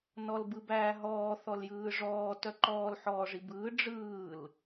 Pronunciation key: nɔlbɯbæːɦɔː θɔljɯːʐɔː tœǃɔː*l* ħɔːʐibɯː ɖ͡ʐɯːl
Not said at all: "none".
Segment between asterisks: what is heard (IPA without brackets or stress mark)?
l